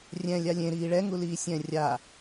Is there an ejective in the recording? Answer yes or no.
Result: no